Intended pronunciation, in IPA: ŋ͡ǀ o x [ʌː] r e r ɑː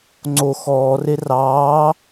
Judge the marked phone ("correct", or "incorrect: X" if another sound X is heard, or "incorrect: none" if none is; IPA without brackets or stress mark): incorrect: ɔː